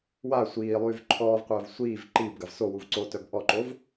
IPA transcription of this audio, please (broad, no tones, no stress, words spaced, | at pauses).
wa sʷiːlˠyːv ǃʰɔːvqʷœːv sʷiːv ǃiːbɡav sowuv ǀotœb ʔɔǃov